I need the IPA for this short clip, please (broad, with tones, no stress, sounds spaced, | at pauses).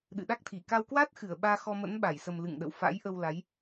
ɗ ɨ̰˧˨ ɗ a˦˥ k̚ t̪ʰ i˧˩ k a˧ w k w a˦˥ t̚ x ɨ˧˩ ə̯ ɓ aː˧ x ɔ˧ m ə̰˧˥ n ɓ a˧˩ j s ə˨˩ m l ɨ̰˧˨ ŋ ɗ ə̰˧˨ w f a̰˧˥ j ʔ ə˧ w l a˨˦ j